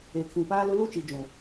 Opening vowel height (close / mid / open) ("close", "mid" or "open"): mid